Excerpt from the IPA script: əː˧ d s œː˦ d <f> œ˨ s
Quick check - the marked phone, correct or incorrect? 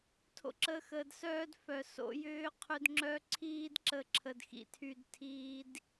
correct